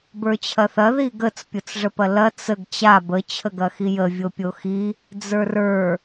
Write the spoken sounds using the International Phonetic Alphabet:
b ə˞ t͡ɕʰ ɐ θ ɐ ð i ɡ ə t͡s pʲ o t͡s ʐ ə p ɐ l ɐ t͡s ə ɡ t͡ɕ a b ə t͡ɕʰ ə ɡ ɐ x i j ə vʲ o pʲ o x i | d͡z ə˞ r ə˞

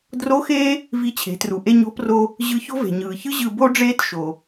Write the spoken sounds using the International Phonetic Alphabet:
d r o˧˥ x eː˥ | v i˧ t͡ɕʰ e̤˩˧ t r u˩ ʔ e˧ ɲ o̤˧˥ p r o˧ | ʑ ɯ˧˥ ç o̤˥ v e̤˩ ɲ ɯː˩ ç ɯ˥ ʑ ɯ˧ b o˥ ɖ͡ʐ eː˥ t ʃ o˩

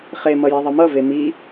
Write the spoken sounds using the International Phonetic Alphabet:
χ e m ʌ j e ðˤ ʌ m ʌ v e m i

